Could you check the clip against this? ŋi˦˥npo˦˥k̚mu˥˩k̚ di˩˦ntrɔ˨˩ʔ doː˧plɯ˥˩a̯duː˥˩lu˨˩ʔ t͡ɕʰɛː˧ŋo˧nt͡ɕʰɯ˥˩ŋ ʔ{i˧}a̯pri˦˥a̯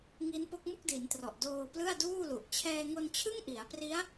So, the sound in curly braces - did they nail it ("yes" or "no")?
no